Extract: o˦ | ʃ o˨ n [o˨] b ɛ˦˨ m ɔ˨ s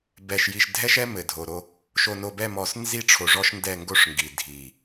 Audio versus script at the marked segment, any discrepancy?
no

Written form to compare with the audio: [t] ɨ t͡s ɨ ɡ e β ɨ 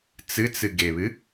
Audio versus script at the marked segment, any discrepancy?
yes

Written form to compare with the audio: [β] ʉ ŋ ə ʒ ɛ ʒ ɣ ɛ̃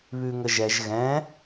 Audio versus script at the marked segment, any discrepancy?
no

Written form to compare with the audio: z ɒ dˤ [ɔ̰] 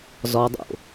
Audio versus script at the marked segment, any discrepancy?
yes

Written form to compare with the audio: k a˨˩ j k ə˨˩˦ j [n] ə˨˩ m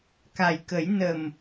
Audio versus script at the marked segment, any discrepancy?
no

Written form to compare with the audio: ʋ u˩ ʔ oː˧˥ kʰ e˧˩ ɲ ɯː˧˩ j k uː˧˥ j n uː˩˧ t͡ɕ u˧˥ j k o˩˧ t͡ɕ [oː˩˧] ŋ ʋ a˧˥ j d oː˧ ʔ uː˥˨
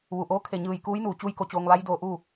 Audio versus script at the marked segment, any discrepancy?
yes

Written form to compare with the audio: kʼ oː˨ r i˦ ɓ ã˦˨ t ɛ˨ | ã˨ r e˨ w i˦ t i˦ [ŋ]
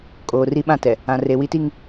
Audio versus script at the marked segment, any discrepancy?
no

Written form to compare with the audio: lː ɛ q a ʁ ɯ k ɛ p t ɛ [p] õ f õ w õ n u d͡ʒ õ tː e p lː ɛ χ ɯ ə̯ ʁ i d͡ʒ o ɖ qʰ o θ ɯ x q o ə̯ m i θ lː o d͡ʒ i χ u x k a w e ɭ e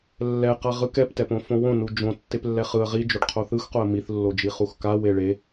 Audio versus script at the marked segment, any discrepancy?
no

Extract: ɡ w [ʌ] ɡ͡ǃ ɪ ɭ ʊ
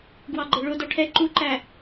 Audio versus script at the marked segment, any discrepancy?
yes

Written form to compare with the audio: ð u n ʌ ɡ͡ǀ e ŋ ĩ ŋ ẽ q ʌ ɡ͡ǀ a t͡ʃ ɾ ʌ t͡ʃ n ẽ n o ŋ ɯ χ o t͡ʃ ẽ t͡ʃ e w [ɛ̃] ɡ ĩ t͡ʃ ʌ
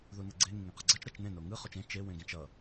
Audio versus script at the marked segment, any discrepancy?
yes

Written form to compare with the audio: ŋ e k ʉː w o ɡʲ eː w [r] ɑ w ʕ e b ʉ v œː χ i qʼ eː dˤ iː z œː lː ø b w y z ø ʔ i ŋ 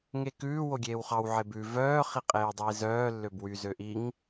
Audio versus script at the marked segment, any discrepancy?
yes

